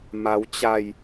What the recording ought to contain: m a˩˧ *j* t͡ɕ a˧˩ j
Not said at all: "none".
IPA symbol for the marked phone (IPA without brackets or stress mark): w